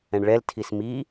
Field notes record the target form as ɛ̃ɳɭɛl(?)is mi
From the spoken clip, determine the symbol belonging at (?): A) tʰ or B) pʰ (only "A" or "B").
A